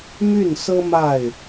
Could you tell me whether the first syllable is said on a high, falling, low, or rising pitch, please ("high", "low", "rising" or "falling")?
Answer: falling